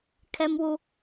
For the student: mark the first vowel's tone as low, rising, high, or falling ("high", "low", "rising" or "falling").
high